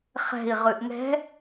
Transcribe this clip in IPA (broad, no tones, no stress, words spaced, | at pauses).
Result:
χɛ̤i̯ ʁʉʔŋɛ̤